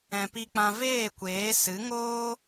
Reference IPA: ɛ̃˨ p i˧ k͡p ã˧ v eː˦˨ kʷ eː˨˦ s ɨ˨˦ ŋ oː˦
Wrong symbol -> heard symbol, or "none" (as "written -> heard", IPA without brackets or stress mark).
none